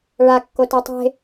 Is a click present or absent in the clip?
absent